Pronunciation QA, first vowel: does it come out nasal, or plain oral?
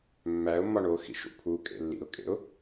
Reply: oral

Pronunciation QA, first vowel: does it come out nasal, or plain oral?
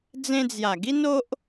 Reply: nasal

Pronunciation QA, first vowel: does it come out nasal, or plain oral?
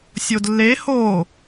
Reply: oral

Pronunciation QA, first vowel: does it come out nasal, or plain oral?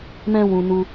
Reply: nasal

